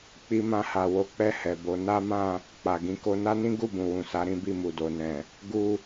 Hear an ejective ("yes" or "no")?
no